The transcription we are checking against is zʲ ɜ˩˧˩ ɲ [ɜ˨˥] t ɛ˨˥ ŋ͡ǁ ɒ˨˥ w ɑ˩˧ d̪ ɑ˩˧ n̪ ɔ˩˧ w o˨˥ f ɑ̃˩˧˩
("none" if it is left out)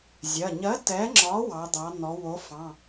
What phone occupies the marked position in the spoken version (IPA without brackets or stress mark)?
ɜ˨˥